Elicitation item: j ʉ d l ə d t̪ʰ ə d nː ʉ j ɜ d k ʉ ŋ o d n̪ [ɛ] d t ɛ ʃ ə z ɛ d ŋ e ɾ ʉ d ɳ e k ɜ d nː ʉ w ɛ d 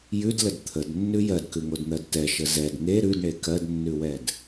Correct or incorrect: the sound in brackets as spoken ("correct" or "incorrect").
incorrect